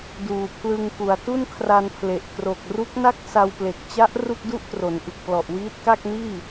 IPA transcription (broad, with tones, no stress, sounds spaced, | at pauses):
d uː˨˩ pʰ l ɯ˧ ŋ k u˨˩ a̯ t u˥˩ n kʰ r a˧ n pʰ l e˨˩ ʔ k r o˨˩ k̚ r u˦˥ k̚ n a˥˩ k̚ s a˧ w p l e˨˩ k̚ t͡ɕ a˦˥ ʔ r u˥˩ k̚ d u˥˩ ʔ t r o˩˦ n ʔ ɯ˨˩ k̚ p l ɔ˨˩ ʔ w iː˦˥ t̚ k a˥˩ k̚ n iː˥˩